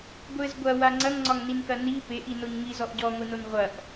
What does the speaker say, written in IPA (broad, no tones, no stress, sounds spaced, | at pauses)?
ɡʷ ɘ z ɡʷ ɐ w a ŋ͡ǀ ɐ ŋ ŋ͡ǀ ɒ ŋ n i n k ɐ n i p e ʔ i n o ɲ ŋ i z ɔ ʔ ɟ ɔ ŋʷ i n o n ʁʷ ɐ ʔ